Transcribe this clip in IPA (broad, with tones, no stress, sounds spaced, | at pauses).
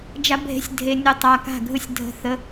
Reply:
d͡ʒ a˧˥ bʱ e̤˧˥ sʲ dʱ e˧ nʲ ɯ˧ tˤ a˧ k a̤˥˩ ɡʱ ɯ˥˩ sʲ dʱ ə̤˥˩ θ ə˧˥